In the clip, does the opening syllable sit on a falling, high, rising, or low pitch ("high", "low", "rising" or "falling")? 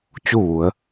falling